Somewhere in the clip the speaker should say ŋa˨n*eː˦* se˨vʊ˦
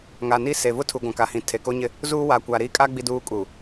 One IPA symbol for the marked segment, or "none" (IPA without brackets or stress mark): iː˦